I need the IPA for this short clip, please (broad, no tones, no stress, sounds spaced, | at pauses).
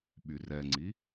ɓ y r ɛ ŋ͡ǀ i